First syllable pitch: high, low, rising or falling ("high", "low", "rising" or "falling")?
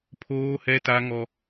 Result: high